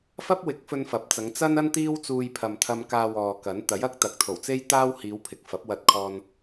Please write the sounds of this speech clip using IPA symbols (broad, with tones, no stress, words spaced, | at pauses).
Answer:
fɐ˥p̚wɪ˨˥k̚fɵ˧n fɐ˨˥p̚ t͡sɐ˨˧ŋ t͡sɐ˥n ɐ˥n t̪iː˥wt͡suː˧jpʰɐ˨mt̪ʰɐ˧m kaː˧ wɔː˨kɐ˨˥n t̪ɐ˨˥jɐ˥k̚t̪ɐ˨k̚ t̪ʰo˨˩wt͡se˥jt̪aː˥w hiː˨˧w pʰɪ˨k̚fɐ˨˥p̚wɐ˧t̚kʰɔː˧n